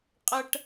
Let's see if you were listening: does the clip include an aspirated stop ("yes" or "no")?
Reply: no